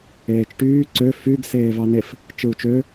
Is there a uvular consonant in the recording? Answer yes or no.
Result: no